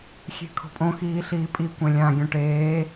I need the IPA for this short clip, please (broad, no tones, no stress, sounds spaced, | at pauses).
xʲ e̤ kʰ o̤ pʼ õ x iː ɬ iː pʼ i kʷ ẽ lʲ ã ɡʲ õ ʈ eː